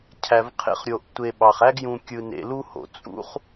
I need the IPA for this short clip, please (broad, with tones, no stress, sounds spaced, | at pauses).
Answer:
cʰ æ˨ v qʰ ḛ˦ χ ɾʲ o˨ ʔ tʷ e˨ ɓ ɑ˩ χ æ˥ ɡ j ũ˨ kʲ ɯ˨ n ḛ˨ l u˥ h o̰˩ t͡sʼ ṵ˦ χ